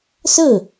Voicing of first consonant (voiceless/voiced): voiceless